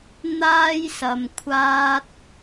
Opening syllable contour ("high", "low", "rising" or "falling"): high